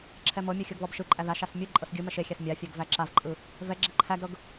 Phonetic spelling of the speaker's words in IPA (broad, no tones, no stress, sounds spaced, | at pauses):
ǁʰ ɛ m ɤ mʲ ɯ xʲ ɤ ɡ β ɔ b ʃ ɯ ǃʼ æ ð a ʃ a s mʲ ɯ ǃʼ ɤ s ɡʲ ɯ m ɛ ʃ e xʲ æ s mʲ a fʲ ɛ ɡ v æ ǁ a v ǃʼ ɯ | v ɛ ɡ͡ǁ ɛ ǃʰ æ ɡ ɾ ɤ ɡ